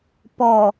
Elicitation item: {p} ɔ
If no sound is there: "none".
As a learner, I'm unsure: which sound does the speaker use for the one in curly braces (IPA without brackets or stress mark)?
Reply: p